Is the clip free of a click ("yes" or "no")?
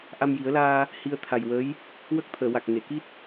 yes